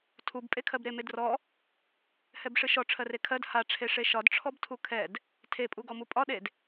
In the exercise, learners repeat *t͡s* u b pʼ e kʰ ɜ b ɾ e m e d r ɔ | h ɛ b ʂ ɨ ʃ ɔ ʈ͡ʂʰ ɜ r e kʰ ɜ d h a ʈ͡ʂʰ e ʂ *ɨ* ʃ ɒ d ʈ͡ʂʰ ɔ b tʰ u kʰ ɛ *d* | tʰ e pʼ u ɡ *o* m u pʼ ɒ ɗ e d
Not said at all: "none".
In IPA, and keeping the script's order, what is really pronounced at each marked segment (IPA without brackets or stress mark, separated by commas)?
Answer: tʰ, e, d, ɔ